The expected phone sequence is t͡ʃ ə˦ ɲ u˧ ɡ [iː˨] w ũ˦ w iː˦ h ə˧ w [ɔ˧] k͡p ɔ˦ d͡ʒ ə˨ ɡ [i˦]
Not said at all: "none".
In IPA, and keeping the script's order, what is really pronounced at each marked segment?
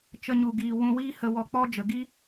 iː˧, ɔ˧, i˦

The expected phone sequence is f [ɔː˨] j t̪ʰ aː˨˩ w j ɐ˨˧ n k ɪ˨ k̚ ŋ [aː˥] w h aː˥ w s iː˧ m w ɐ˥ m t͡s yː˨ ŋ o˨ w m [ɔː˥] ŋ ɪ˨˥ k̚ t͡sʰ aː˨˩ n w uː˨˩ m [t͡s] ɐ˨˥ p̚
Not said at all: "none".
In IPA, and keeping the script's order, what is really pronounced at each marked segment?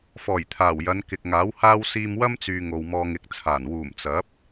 ɔː˨˩, aː˨˥, ɔː˧, t͡s

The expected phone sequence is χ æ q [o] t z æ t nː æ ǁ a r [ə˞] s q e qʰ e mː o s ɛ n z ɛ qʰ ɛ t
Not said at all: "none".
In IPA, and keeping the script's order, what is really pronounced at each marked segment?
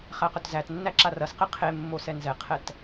ɵ, ɐ

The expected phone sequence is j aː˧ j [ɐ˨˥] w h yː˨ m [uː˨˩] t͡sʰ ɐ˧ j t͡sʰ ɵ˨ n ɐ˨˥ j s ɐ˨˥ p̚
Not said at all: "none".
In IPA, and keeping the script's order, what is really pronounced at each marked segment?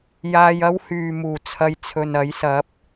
ɐ˥, uː˨˩

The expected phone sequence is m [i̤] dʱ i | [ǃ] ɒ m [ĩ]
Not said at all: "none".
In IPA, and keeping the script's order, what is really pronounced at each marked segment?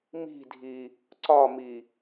i̤, ǀ, i

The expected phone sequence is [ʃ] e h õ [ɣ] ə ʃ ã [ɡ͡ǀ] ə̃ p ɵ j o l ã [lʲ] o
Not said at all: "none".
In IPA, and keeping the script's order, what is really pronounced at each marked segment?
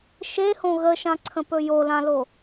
ʃ, ɣ, ǀʰ, l

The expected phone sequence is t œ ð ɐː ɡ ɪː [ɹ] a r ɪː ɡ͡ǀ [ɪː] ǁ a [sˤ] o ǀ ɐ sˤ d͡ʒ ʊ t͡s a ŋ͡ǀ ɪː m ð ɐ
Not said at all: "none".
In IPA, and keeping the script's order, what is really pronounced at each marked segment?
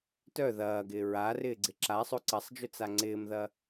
ɹ, ɪ, sˤ

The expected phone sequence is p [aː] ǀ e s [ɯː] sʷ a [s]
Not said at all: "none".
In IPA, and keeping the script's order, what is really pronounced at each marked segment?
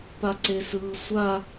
a, ɯː, none

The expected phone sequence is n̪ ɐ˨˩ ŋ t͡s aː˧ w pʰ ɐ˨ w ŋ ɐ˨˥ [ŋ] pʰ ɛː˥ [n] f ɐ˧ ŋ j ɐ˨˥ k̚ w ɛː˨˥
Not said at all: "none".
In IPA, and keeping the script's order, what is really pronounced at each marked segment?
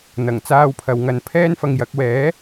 n, n

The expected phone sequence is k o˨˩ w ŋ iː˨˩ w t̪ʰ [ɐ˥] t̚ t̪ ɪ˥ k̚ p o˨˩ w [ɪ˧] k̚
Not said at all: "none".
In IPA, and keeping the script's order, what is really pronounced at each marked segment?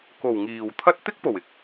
ɐ˥, ɪ˧

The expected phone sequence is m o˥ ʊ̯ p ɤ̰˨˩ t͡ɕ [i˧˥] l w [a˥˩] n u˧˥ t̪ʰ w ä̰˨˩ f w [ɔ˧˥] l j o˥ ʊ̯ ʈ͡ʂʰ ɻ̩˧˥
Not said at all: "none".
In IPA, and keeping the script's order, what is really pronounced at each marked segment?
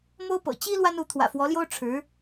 i˥, a˥, ɔ˧˥

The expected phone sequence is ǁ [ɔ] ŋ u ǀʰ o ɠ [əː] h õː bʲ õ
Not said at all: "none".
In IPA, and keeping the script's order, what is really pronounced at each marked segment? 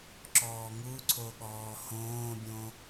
ɔː, ɔː

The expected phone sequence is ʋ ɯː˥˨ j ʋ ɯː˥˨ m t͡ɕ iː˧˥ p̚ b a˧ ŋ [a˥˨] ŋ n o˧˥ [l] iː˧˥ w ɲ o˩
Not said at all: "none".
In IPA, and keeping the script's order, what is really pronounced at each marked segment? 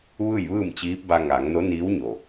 a˩˧, n

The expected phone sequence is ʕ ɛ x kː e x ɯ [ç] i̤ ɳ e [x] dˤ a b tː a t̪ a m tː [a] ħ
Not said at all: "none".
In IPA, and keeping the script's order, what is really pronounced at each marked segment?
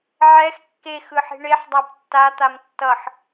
ħ, ħ, ʌ

